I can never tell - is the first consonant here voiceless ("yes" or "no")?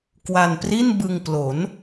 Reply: yes